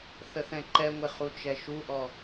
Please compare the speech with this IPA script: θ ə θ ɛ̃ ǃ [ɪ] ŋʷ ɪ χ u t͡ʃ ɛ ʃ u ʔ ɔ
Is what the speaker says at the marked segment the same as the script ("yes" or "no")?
no